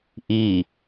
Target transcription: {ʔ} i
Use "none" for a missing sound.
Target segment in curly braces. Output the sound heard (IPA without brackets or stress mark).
ʔ